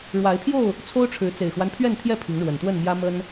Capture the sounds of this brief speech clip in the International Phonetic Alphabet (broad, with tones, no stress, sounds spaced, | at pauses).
ɻ w a˨˦ ɪ̯ pʰ j o˥˨ ʊ̯ | t͡sʰ o˦ ʊ̯ ʈ͡ʂʰ ɻ̩˨˦ t͡s e˨˩ ɪ̯ x w a˦ n pʰ ɥ ɛ˥˨ n t̪ʰ j ɛ˥˨ pʰ i˨˦ ŋ ɻ w ə˨˩ n t̪ w ə˥˨ n m j ä˦ m ə˦ n